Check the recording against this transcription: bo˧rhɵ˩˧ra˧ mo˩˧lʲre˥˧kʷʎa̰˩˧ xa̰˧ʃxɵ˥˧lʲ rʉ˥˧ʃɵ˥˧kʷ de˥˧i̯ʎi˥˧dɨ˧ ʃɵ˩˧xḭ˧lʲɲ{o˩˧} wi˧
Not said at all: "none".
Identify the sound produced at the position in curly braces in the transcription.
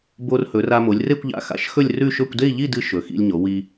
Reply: o˩˧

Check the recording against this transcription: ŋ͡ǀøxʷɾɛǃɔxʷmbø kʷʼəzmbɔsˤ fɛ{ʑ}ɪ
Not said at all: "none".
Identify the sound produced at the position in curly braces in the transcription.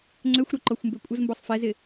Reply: z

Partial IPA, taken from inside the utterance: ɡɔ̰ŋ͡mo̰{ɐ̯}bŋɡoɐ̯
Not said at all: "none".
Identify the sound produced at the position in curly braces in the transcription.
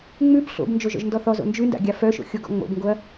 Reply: none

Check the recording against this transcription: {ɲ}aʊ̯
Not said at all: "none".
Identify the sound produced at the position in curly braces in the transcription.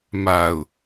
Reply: m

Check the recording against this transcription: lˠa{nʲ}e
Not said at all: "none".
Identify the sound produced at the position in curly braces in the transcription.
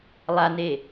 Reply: n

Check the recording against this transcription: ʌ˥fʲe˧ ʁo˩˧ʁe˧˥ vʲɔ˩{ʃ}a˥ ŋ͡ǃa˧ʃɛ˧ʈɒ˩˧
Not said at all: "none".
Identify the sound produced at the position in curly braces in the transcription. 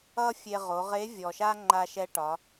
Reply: ʃ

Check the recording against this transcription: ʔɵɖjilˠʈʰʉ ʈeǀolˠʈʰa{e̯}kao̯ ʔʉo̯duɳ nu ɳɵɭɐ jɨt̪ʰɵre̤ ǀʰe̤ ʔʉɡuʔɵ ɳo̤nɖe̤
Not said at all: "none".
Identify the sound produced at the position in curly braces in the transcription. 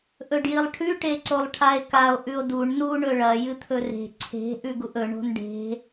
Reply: e̯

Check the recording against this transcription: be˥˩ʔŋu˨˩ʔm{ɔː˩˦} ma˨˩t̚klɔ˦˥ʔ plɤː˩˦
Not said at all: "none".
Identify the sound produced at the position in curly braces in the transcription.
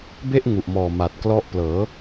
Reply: ɔː˨˩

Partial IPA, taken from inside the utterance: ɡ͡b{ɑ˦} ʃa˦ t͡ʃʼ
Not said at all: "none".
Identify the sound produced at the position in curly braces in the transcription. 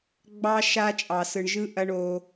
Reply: ɑ˦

